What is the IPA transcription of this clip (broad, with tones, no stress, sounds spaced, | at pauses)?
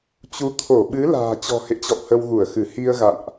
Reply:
t͡ɕ u˨˦ t̪ʰ o˧˩ ɓ ɨ˨˦ l a̤ː˨˩ t͡ɕ ɔ̤˨˩ h ḛ˧˨ t͡ɕ ɔ̰˧˨ w h ə˧ w ɣ u˧˩ ə̯ x ɨ˧˩ h i˧ ə̯ ɣ a̰˧˨ n ʔ